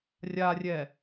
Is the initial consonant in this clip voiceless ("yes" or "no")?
no